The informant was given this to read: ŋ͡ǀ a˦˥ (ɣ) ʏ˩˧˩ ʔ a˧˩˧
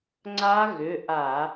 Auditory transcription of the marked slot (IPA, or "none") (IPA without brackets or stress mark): ɣ